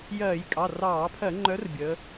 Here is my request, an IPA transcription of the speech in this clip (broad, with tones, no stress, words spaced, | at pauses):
jɜː˧˩˧j kʼɑ˩˧˩rɑː˧˩˧pʰɜ˧˩˧ ŋ͡ǃœ˨˥r bʲəː˩˧